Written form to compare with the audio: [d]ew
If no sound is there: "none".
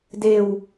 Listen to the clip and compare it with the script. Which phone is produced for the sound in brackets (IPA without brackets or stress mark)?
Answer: d